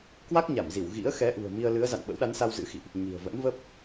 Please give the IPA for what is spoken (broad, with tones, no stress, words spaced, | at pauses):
kwa˦˥k̚ɲa˧˩mzi˧˩w ɣḭ˧˥ə̯xɛ˨˦ʔṳ˨˩ə̯ mi˧ə̯lɨ˨˦ə̯za̰˧˨n ɓə̰˧˥wɗa˨˦nsa˧w zɨ̰˧˥xḭ˧˨ʔ | ɲi̤˨˩ə̯və̰˧˥nvə˦˥p̚